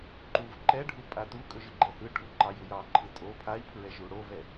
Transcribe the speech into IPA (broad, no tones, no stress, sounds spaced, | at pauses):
ǃ u v ǃ ɛ ɖʱ u pʼ a t u kʼ ɵ ʒ ɯ ɡ͡ǃ ɛ h ɯ ʈʰ u ǃ ɑ j u j ɑ ǃʰ ɯ tʼ o pʰ a i̯ pʰ ɹ ɛ ʒ u ɽ o v ɛ